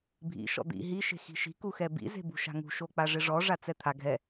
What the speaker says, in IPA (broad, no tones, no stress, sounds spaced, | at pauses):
bʱ ḭ ʃ ɔ̰ d̪ ḭ ɦ i ʃ e̤ x i̤ ʃ i̤ k u x ɛ b ḭ z e̤ b ṳ ʃ a̤ ŋ ṳ ʃ o k͡p a ʐ ɪ ʐ ɔ ʐ a t͡s ɛ t̪ʰ a ɡʱ ɛ